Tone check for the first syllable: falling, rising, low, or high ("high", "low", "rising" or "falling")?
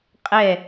falling